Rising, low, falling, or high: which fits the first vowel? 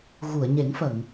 low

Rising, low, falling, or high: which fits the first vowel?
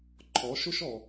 rising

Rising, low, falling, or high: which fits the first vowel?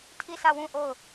falling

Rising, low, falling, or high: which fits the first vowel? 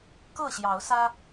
falling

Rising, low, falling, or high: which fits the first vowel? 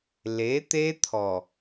rising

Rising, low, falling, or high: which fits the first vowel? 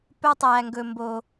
high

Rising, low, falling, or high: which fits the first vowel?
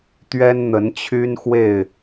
high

